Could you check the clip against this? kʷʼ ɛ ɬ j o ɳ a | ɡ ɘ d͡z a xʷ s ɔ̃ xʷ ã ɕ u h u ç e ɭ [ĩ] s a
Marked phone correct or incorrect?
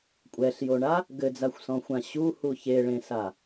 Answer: incorrect